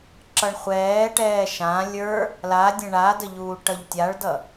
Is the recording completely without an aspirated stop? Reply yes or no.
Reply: yes